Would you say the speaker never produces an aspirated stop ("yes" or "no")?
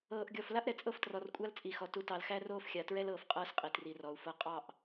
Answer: yes